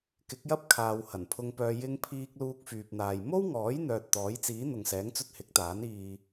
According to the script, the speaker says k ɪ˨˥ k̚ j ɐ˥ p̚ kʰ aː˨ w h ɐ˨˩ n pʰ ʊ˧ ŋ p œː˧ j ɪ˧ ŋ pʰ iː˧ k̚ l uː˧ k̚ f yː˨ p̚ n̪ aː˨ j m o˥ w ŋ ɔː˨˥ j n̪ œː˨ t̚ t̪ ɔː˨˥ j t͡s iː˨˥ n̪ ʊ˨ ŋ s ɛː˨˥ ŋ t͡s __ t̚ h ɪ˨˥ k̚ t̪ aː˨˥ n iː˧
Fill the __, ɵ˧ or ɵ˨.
ɵ˧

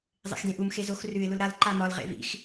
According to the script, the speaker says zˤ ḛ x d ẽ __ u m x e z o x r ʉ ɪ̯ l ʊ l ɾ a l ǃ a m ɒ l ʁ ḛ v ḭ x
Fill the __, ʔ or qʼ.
ʔ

